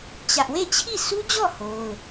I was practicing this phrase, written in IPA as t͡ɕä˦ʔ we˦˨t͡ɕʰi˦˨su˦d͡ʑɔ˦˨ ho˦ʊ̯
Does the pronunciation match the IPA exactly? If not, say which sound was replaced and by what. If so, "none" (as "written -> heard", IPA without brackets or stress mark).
none